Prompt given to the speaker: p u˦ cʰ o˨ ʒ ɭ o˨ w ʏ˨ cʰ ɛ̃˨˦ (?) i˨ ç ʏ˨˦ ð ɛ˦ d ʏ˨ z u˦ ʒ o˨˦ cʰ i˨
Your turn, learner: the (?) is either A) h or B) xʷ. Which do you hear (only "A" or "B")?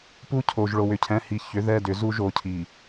A